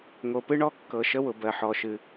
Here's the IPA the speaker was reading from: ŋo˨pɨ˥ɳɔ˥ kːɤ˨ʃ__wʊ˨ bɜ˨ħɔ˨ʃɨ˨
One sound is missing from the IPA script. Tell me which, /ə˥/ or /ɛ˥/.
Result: ə˥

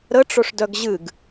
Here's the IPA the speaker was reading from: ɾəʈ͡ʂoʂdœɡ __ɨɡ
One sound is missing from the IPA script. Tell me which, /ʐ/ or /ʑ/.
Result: ʑ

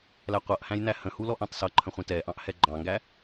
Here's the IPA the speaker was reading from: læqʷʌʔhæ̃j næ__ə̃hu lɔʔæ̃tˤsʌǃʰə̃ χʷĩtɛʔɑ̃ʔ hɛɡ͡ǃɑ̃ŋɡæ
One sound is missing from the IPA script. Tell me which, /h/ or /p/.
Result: h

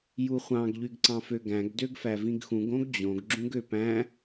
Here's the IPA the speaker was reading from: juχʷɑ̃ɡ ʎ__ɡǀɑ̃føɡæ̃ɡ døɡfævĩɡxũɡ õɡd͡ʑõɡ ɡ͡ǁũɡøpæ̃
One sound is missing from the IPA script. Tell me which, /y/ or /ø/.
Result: y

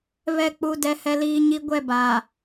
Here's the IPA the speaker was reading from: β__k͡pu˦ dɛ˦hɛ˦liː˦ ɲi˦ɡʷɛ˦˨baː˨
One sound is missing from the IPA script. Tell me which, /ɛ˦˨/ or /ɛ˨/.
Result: ɛ˦˨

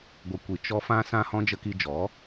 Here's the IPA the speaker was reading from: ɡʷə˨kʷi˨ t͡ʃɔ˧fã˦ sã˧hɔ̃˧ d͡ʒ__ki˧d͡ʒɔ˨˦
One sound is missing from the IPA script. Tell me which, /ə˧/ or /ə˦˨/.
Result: ə˧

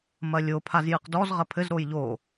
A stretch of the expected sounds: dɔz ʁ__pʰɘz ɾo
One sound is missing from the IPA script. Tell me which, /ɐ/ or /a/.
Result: ɐ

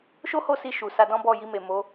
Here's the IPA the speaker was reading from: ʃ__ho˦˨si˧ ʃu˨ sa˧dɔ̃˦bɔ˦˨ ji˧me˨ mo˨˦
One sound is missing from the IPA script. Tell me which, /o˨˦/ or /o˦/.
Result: o˦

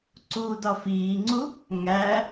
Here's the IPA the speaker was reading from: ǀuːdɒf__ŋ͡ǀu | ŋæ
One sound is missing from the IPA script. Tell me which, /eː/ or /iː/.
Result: iː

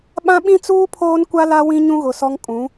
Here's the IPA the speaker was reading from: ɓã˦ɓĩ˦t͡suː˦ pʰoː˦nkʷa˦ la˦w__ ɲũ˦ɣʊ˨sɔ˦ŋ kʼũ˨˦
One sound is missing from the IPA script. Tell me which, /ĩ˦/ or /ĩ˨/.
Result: ĩ˦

